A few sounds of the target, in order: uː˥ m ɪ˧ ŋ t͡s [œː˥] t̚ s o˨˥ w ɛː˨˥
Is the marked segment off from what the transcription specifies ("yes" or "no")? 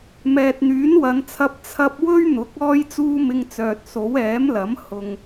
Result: yes